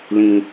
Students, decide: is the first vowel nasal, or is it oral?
nasal